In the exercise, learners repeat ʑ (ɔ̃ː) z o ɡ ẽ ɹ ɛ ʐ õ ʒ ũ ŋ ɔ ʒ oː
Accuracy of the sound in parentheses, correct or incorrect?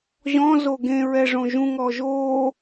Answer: incorrect